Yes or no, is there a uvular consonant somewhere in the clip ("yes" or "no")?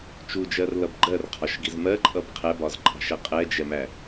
yes